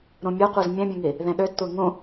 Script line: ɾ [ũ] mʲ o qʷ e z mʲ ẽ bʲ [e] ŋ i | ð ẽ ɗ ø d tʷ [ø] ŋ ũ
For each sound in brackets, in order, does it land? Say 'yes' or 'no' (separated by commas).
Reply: yes, no, no